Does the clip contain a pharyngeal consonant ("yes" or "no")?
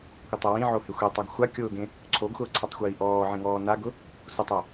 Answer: yes